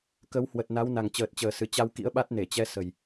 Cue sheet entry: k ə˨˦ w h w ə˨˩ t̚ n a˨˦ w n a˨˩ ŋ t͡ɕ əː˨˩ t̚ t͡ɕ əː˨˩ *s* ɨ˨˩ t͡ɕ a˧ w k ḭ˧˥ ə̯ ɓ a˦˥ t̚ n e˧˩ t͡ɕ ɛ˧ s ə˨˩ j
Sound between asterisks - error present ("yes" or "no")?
no